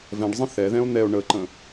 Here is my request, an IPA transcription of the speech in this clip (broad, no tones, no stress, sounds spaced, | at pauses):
v ɛ̃ ɖ zˤ ə̃ θ ɛ ð ɛ̃ o̯ n̪ ɛ o̯ ɳ ə ǃ ə̃